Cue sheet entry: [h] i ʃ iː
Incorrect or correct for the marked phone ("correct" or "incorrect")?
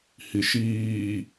correct